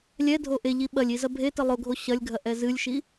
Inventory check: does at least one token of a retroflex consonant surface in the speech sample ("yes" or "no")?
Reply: no